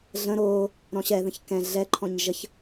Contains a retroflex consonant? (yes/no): no